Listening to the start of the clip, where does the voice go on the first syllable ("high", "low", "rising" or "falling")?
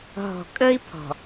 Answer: low